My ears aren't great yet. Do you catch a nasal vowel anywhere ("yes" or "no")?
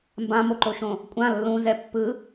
yes